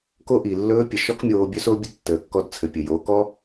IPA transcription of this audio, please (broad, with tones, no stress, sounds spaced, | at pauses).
k o˥ ʔ i˩ lː ɵː˧˥ pʲ ə˩ ʃ ɔ˥ k mʲ oː˧ bʲ ɵ˥ s o˥ bʲ ə˥ tː əː˩ kː ɔ˧ d t͡sʰ ɘ˩ pʲ ɘ˩ j oː˩˧ k ɔ˥